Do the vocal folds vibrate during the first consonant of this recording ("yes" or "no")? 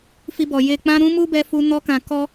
no